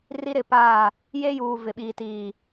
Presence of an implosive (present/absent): present